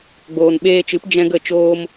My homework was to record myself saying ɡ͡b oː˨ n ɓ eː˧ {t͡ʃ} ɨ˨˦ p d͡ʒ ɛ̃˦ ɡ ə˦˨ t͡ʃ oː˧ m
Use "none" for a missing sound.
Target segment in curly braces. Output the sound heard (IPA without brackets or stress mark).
t͡ʃ